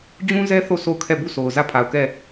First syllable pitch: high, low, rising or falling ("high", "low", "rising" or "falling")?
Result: high